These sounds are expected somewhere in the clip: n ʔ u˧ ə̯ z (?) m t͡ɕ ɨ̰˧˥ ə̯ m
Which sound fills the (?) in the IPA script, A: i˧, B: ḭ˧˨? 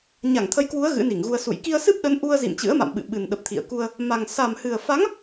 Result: B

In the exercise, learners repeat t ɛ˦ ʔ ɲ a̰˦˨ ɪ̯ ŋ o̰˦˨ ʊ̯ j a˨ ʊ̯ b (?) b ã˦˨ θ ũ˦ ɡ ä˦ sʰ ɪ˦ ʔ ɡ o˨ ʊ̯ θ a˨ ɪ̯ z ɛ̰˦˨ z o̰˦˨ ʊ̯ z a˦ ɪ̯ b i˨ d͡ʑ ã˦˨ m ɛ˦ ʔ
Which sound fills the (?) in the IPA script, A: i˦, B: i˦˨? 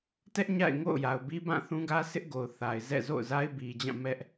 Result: A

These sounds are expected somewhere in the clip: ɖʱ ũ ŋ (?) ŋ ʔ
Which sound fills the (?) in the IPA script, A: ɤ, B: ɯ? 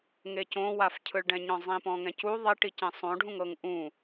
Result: A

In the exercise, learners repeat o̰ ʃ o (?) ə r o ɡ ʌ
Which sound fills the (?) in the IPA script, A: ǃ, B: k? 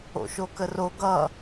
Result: B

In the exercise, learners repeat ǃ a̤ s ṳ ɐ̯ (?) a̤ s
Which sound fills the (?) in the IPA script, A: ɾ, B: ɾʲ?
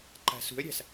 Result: B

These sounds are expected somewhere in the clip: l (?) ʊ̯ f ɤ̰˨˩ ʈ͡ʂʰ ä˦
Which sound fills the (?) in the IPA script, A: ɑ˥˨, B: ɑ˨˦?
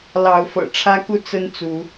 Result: B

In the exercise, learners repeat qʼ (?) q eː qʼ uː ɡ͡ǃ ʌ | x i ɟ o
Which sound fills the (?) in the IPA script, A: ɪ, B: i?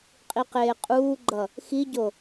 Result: B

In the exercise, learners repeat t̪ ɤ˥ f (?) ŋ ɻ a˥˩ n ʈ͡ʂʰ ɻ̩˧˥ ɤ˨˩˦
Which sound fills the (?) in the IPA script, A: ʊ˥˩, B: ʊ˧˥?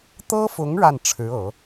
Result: B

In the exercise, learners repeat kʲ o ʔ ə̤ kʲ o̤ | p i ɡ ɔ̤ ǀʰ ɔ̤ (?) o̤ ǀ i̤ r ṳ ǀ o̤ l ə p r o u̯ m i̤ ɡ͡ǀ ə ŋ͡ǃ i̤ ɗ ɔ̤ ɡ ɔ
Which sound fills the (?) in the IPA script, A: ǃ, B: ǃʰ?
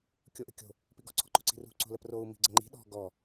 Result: A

